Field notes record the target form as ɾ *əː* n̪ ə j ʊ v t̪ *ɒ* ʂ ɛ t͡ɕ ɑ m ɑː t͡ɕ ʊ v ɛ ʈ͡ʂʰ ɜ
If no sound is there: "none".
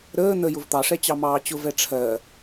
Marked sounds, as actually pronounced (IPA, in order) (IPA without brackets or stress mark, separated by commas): əː, ɑ